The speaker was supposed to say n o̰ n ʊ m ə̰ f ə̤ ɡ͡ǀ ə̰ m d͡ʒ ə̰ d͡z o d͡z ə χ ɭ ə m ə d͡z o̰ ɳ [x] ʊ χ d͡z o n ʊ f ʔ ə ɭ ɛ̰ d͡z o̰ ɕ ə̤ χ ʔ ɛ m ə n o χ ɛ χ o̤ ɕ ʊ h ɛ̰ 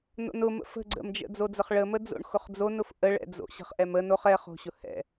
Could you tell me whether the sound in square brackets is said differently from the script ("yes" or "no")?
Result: no